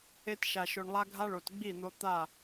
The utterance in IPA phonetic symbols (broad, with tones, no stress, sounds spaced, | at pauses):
e˧ t ʃ a˨ ʃ o˨ ɳ lˠ a˧ ɡʱ a˧ ɭ o˨ t ɡ͡b i˦˨ n̪ o˧ t̪ a˦˨